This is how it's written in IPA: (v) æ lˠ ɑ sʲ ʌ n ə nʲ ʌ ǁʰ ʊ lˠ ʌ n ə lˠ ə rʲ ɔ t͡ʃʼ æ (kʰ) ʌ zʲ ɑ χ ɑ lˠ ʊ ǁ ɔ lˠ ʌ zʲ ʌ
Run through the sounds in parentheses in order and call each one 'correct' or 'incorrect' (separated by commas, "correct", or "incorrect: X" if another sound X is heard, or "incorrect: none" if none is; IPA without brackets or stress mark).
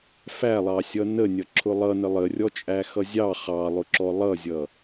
incorrect: f, incorrect: x